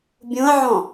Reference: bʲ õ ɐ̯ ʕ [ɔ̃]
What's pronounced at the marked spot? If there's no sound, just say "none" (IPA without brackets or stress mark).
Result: ɔ̃